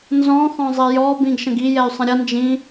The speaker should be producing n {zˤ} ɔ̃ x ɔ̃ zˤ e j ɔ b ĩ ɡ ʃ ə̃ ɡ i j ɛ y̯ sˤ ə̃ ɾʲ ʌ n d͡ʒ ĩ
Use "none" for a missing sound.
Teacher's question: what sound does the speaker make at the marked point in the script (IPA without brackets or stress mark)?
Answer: z